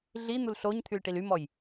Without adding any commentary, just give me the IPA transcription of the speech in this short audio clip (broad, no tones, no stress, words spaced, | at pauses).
ɮin̪ul ɬoɲ t̪ʰylʈilymɔj